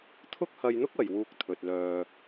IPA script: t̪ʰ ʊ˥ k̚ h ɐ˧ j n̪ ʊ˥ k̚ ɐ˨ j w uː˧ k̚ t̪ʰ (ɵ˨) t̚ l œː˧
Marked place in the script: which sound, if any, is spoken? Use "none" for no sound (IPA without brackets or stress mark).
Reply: ɵ˨